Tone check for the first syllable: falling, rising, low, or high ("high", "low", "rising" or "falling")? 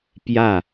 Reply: falling